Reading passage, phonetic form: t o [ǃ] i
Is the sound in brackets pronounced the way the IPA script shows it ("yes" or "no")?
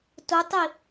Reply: no